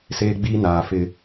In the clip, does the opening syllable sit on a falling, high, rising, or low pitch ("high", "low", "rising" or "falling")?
high